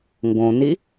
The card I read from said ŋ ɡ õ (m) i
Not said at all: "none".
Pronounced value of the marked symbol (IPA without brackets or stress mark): n